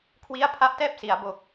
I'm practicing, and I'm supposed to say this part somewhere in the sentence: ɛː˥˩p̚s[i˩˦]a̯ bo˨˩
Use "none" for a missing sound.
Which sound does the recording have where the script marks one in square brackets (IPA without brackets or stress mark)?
i˩˦